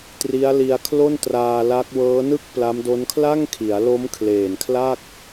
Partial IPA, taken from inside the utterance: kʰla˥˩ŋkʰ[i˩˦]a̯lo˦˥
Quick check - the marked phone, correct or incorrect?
correct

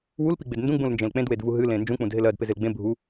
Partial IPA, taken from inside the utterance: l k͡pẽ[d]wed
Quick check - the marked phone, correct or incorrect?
correct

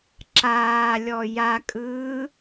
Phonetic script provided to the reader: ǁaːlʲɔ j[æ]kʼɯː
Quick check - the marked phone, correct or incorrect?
incorrect: a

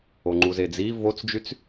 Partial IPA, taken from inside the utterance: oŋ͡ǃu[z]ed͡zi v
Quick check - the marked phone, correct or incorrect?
correct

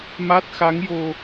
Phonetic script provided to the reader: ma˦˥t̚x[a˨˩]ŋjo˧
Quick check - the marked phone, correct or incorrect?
incorrect: a˧˥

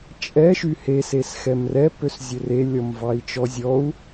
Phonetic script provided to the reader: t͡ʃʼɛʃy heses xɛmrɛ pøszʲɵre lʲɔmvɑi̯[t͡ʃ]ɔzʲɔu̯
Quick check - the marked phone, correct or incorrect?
correct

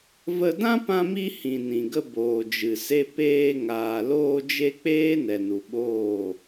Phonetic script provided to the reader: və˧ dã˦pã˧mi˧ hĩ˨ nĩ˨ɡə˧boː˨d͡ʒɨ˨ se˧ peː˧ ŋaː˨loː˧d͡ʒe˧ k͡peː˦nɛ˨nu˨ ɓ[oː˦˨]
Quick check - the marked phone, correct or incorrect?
correct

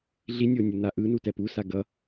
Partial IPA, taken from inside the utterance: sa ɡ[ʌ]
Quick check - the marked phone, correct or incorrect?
correct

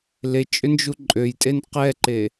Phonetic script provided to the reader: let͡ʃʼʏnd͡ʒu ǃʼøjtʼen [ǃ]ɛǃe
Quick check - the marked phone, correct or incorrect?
incorrect: q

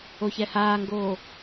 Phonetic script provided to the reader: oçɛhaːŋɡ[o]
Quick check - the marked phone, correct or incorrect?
incorrect: oː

